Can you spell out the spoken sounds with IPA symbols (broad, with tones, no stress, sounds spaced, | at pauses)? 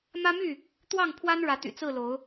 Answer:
m ä˦ m y˥˨ | t̪ w ɑ˥˨ ŋ pʰ w a˦ n ɻ ä˨˦ t̪ y̰˨˩ t͡s ɹ̩˥˨ l o˨˦ ʊ̯